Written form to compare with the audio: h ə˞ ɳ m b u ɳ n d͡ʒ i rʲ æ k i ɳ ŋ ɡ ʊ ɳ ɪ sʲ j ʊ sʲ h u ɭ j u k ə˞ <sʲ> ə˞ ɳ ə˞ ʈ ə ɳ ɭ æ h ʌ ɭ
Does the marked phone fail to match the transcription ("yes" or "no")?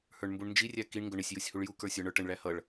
no